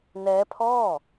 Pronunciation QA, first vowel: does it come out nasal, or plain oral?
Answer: oral